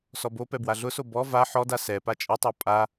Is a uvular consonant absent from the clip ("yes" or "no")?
yes